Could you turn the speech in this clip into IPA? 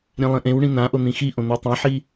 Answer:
ɾʲẽlˠĩʔẽwɳĩ n̪ãʔon̪ĩ xiʔõn̪ø tˤɛ̃ħi

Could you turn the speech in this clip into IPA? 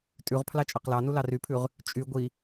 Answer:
tʼʉʁpʰlɑ t͡ʃʼɑqlɑnu lɑrypʰʉʁ | t͡ʃʼy ɡʷi

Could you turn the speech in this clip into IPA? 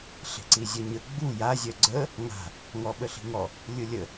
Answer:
ɬe̤ǀizʲœɲə ɡ͡bu ja zʲœɡ͡ǀə | ŋa̤ | ŋɔɓəɬi̤ŋɔ | lʲɯlʲə

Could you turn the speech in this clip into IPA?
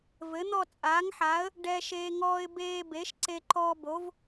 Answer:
vɘ˩˥n̪ɔ˥˧ t͡sʼaː˩˥ŋħaː˩˥ə̯ | ɖɛ˧ʃeː˧ ŋɔː˧ɪ̯beː˧ be˩˥ʃǀe˧ ǃɔː˧bo˩˥v

